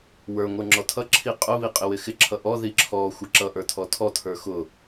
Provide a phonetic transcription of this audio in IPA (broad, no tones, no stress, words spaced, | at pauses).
wə˞ ŋʷə˞ŋ͡ǁɔtʰʌ ǁʰiqʼʊ βiqʼɪwɪxɪ ǁʰʌʔɔ ðiǁʰɔ xʷɪǁʌ ʔə˞tʰɔtʰɔ tʰə˞xʊ